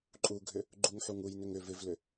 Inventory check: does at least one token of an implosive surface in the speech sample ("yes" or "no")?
no